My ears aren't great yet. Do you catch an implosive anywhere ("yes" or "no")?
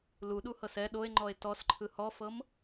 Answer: yes